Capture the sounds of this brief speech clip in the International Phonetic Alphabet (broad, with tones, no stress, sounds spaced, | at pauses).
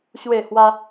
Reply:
ɕ w e˥˧ h w a˦